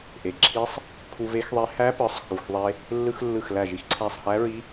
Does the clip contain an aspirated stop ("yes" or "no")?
yes